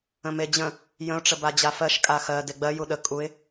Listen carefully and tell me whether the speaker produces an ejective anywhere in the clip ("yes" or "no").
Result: yes